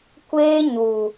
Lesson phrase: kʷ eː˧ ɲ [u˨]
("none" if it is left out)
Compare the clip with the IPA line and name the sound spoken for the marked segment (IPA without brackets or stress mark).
u˨